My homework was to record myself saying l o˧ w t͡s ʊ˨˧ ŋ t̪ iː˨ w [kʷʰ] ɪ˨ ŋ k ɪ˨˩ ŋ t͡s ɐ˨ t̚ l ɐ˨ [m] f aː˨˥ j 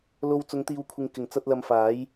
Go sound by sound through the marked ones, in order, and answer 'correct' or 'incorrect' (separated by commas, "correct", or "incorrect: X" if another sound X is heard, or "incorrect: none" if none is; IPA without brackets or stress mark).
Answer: correct, correct